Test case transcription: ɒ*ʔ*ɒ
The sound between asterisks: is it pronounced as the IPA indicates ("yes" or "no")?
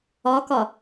no